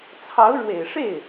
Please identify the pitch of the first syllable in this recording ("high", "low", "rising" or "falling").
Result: rising